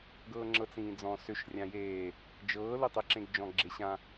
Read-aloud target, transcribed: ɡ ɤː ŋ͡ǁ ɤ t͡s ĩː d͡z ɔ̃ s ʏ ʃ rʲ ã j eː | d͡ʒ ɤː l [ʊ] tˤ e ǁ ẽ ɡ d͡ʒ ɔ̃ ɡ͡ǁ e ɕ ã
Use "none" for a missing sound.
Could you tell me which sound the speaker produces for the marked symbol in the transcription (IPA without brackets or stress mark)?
ʊ